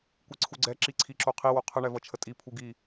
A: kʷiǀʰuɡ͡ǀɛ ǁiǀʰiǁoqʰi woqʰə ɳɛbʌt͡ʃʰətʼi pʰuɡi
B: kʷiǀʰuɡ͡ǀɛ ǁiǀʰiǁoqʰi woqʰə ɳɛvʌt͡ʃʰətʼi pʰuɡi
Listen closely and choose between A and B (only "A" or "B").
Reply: B